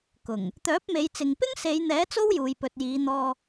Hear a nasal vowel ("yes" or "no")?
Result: no